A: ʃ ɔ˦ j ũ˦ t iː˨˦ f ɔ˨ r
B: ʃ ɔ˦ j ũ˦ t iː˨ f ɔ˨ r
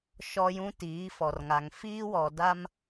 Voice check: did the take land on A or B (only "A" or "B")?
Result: A